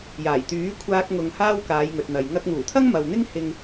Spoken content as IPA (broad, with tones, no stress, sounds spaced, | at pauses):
j aː˨˩ j t̪ yː˨˥ kʷʰ aː˧ k̚ ŋ ʊ˨ ŋ h aː˥ w k aː˨˧ j ŋ ɵ˨ t̚ n̪ ɐ˨ j ŋ ɐ˧ k̚ ŋ uː˨˩ t̪ʰ ɐ˥ ŋ m ɐ˨ w n̪ ɪ˥ ŋ h ɪ˧ ŋ